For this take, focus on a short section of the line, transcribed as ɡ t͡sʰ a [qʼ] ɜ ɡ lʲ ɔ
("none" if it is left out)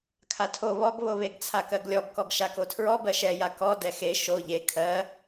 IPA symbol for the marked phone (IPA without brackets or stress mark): k